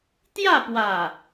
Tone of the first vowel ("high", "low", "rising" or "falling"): falling